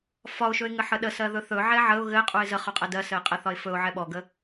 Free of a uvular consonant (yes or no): no